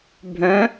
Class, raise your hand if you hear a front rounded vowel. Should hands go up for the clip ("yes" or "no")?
yes